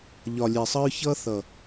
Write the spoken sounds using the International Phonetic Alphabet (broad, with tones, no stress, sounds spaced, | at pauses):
ʎ ɒ˨ lʲ e˨ sˤ ə˦ ɹ ç ʌ˦ θ ʌ˨